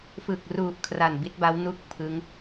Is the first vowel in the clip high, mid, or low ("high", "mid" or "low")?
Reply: high